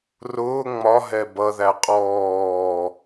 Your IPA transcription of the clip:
r ʊː ŋ͡m ɒ ɦ ɛ b ʌ ð æ qʼ ɔː

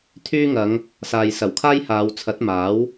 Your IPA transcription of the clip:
t̪ʰ yː˥ ŋ ɐ˨˧ ŋ | s aː˨ j s ɐ˨˩ w kʰ aː˥ j h aː˨˧ w t͡sʰ ɐ˨˥ t̚ m aː˨˥ w

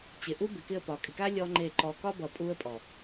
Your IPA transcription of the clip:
t͡ɕ ɪ˨ ʔ u˦ b ɪ˨ k ɪ˦˨ ə̯ p ɒ˨ kʼ ɪ˨ k a˦ lʲ ɔ˦ ŋ͡ǃ e˦˨ ǃ ɔ˨ k ɒ˦ b ʌ˨ pʼ u˦ ə̯ pʼ ɔ˨

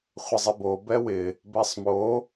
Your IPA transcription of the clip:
χʷ ɪ zˤ ɪ b o b ɛ w ɪ | b ɛ sˤ m o

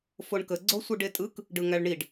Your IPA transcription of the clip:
f o ɳ k ə ɡ͡ǀ o sʷ ɯ ɖ e tʼ ɯ k | ɖ ɯ ŋ æ ɭ ɳ i ɖ

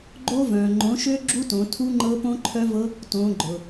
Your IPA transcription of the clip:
ɡ͡ǃ o˦˥ v œ̃˩ ŋ͡ǃ õ˩˥ ʃ ø˦˥ ɡ͡ǁ u˦˥ t õ˩˧ tʰ u˦˥ ŋ͡ǃ ɤ˦˥ p õ˦˥ ǃʰ œ˦˥ v ɤ˦˥ | t õ˩˧ ɡ͡ǃ ʊ˩

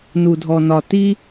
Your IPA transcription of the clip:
n u˧ dʱ ɔ˧ n ɒ˧ t i˦

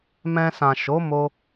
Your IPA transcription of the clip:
m ɛ̃˧ s ã˨ ʃ o˨˦ m o˧

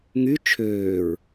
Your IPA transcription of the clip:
ŋ y t͡ʃʰ øː ɹ

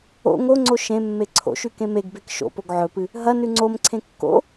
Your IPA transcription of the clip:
o̰ ŋ o ŋ͡ǀ o ʃ ẽ mː e ǀʰ o̰ ʃ ʉ k ẽ m e ɡ b e k ʃ o̰ p o ɡ ʕ ɵ p ɨ | ɦ ɐ n ʉ ŋ͡ǀ o m ǀʰ ẽ kː o̰

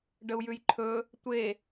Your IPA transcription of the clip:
ɖ ə u̯ j ʉ j ǃʰ ɵ | tʷ e

